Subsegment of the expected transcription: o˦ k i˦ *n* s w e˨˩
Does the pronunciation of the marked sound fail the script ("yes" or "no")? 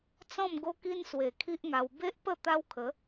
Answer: no